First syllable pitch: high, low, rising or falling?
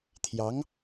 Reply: rising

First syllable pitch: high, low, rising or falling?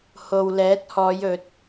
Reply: low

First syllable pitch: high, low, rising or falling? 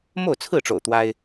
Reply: falling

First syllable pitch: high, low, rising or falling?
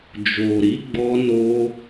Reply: low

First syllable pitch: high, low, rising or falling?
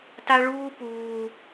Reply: high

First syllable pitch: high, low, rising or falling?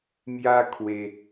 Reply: high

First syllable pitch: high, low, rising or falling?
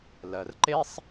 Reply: low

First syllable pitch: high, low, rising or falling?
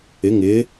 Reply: rising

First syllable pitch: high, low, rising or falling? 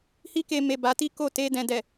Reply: high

